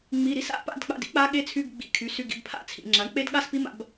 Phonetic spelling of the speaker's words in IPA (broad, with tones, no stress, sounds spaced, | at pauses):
ŋ͡m i˧˥˧ ɾ i˦˥ s a̰˧˥˧ p a̰˥˧ d k͡p a̰˧˥˧ d ḭ˦˥ k͡p a˦˥ ɠ e˦˥ t͡sʰ y˧˥˧ ɡ ɡ͡b ḭ˧ kʰ y˩˥ s y˧˥˧ ɡ ḭ˧ b pʰ a̰˥˧ t͡sʰ ḭ˩˧ ŋ͡ǁ a˩˥ ɳ k͡p e˦˥ d ɠ a˥˧ s p i˦˥ m a̰˧ b